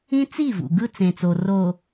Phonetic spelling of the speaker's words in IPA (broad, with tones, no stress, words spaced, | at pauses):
ĩ˦t͡si˦˨vṵ˨ ɡɯ˦t͡sẽ˨t͡so˨ ro˨